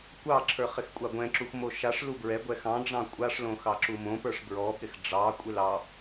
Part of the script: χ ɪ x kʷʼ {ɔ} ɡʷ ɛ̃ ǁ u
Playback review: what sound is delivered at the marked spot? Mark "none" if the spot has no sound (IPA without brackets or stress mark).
ɑ